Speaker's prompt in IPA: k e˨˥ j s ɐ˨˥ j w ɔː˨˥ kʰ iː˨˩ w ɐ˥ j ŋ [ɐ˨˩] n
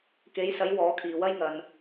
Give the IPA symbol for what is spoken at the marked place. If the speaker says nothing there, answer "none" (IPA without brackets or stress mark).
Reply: ɐ˨